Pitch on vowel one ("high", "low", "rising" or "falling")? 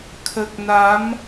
low